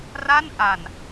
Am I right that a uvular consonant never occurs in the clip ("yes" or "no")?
yes